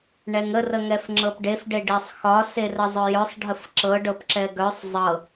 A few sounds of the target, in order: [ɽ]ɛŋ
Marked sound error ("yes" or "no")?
yes